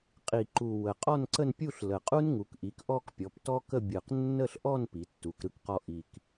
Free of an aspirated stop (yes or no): yes